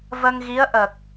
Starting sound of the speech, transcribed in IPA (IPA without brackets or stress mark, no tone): v